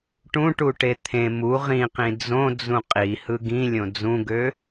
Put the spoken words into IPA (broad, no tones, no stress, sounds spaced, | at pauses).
ʈ ũ ʈ u ʈ e t̪ʰ ẽ m u ʁ ĩ q ĩ d͡z õ d͡z ũ qʼ i h ɯ ɡ ĩ lʲ õ d͡z ũ ɡ ø